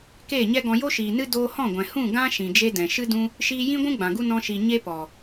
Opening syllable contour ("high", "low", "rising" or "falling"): falling